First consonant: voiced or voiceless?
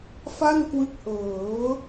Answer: voiceless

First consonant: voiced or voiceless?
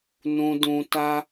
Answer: voiced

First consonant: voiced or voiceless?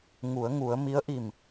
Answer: voiced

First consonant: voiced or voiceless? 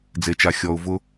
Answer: voiced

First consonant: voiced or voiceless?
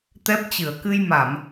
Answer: voiceless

